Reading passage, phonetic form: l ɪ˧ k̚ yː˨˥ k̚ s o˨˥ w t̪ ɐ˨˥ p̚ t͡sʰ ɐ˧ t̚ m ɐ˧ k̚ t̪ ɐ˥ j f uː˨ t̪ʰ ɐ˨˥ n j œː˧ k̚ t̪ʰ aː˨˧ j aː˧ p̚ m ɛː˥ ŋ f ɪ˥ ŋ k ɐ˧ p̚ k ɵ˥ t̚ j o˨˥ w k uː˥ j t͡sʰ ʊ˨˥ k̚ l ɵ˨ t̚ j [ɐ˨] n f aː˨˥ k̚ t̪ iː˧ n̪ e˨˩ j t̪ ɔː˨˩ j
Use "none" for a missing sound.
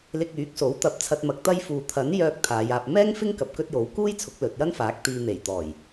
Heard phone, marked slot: ɐ˥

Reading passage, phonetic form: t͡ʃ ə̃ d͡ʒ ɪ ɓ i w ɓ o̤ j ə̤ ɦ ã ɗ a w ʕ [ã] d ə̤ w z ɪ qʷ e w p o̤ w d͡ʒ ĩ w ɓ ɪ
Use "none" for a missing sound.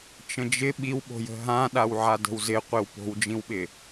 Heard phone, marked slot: a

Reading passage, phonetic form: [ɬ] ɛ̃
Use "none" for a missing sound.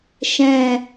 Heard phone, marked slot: ʃ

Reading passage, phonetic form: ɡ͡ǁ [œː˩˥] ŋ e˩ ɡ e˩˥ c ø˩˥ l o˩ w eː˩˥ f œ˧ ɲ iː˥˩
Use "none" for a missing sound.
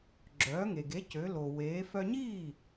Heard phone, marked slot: œː˩˥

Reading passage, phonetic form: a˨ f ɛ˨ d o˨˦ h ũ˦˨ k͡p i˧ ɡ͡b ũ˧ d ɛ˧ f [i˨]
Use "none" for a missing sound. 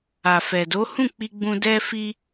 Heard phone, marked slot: i˧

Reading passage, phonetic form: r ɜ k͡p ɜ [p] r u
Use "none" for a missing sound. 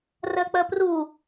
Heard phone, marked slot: p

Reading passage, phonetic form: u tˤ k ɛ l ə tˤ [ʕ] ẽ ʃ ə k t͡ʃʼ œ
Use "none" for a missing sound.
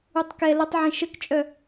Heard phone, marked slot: ʕ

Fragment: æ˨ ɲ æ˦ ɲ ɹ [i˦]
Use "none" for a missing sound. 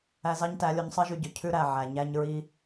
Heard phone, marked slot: i˦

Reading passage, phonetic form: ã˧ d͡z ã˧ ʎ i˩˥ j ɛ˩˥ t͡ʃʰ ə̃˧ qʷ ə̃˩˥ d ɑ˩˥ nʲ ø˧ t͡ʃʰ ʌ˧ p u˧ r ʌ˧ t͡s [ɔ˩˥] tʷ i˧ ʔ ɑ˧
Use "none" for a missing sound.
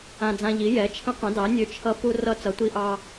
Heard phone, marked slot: ʌ˩˥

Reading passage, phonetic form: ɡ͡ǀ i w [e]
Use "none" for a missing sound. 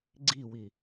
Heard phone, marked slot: i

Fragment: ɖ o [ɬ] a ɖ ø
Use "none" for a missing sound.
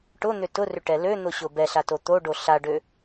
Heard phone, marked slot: ɬ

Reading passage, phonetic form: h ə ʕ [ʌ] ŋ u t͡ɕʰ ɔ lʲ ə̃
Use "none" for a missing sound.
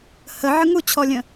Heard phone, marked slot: ə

